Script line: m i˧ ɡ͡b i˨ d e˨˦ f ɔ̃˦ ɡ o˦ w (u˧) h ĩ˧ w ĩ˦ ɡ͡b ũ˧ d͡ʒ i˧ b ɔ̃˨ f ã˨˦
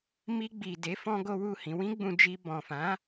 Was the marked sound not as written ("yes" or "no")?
yes